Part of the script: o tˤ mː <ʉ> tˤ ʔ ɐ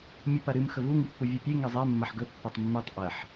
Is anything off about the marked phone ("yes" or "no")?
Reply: no